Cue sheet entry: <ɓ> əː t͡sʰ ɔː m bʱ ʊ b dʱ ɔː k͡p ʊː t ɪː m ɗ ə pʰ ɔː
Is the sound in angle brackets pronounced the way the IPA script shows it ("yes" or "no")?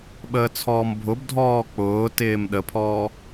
yes